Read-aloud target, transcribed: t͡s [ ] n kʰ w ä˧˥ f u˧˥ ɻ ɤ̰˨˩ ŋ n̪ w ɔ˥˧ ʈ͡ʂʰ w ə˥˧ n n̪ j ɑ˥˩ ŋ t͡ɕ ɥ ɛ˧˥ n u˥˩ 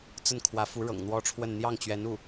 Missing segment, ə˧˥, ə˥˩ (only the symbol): ə˥˩